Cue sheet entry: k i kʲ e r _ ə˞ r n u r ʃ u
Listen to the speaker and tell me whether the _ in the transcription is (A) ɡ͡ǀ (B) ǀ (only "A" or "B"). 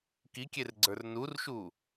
A